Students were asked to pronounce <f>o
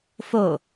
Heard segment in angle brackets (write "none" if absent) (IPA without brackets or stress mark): f